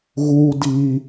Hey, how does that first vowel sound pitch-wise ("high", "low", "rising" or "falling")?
high